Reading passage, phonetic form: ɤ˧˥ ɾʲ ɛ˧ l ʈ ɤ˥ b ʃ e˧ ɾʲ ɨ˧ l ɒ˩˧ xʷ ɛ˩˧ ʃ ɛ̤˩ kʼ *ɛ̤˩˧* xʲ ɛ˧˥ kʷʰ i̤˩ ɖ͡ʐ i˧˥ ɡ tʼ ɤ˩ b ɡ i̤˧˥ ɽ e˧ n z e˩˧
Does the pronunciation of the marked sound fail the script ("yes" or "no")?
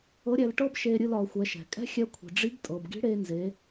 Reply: yes